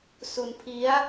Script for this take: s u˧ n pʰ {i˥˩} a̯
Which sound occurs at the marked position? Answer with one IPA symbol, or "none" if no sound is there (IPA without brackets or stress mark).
i˦˥